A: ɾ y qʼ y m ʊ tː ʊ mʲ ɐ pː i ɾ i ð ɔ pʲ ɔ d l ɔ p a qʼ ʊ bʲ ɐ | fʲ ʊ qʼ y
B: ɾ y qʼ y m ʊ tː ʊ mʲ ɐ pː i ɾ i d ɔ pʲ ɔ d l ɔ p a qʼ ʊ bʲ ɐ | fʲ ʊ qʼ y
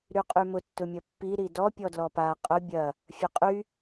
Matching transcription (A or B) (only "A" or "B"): B